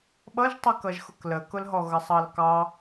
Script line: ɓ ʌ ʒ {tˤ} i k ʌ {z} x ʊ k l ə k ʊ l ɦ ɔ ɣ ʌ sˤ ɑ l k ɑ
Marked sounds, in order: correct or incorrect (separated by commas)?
correct, incorrect